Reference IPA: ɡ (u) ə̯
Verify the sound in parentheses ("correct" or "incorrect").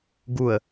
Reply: correct